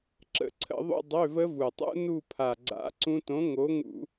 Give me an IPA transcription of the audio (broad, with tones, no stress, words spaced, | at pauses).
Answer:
ǁə̰˧˩˧ǀʰə̰˧˩˧ðˤṵ˧˥˧ dˤø˧˥˧və˦˥vu˨˩tˤṵ˦˥ nu˦˨pʰa˨˩ɡ͡ǀa̰˨˥ ǀũ˦˥ tõ˨˥ŋo˨˥ ŋṵ˧˩˧